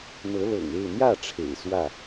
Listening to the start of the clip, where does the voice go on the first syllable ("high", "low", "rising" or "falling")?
rising